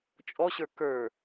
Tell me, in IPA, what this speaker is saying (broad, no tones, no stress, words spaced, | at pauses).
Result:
t͡ʃʼɔɕə˞ kə˞